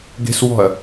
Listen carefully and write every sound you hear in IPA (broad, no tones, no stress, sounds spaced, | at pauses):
ɡ e̤ s w ɔ̤ ɐ̯